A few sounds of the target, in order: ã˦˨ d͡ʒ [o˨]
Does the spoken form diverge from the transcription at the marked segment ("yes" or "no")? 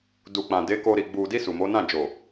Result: no